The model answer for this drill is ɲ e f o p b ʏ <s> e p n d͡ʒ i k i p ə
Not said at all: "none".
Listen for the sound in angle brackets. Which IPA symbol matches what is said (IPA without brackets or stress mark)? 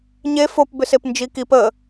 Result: s